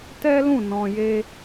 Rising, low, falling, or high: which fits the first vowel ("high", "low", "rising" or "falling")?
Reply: high